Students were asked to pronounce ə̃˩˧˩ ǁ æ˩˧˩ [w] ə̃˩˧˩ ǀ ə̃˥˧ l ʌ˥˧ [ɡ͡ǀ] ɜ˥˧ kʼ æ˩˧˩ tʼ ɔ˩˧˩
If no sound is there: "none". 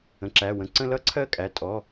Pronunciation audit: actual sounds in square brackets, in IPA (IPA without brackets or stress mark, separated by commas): w, ǀʰ